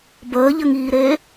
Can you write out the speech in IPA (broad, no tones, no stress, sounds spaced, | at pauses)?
b əː ʎ ə ŋ iː ɾ eː